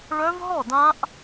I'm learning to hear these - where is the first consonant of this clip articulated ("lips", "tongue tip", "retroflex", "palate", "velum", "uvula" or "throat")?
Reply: retroflex